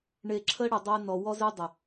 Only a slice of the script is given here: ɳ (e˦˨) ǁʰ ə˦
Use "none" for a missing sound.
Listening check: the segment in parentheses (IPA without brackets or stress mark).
e˨